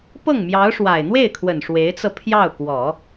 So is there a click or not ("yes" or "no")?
no